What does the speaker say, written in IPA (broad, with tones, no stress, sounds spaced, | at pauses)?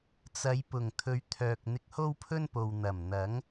t͡s ɐ˨˧ j p ʊ˨˩ ŋ t̪ʰ ɵ˨˧ ɥ t̪ʰ œː˨ k̚ n̪ ɪ˧ k̚ h o˥ w pʰ ɵ˥ n p o˨ w n̪ ɐ˨˩ m n̪ ɐ˨˥ ŋ